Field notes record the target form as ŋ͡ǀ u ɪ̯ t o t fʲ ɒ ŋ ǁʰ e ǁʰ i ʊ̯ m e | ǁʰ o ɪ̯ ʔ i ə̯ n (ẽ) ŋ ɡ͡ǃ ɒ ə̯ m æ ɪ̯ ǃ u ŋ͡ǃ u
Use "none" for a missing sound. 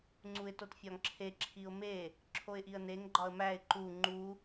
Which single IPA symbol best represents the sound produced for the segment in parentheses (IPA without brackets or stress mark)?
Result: e